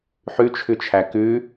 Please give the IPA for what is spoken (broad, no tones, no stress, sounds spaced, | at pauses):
ħ ʉ t͡ʃʰ ʉ t͡ʃʰ æ k ʉ